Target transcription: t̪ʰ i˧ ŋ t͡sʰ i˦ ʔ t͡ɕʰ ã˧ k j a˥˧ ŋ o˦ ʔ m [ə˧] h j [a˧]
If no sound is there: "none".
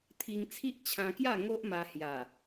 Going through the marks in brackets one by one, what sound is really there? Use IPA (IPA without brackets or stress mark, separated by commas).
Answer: a˧, a˨˩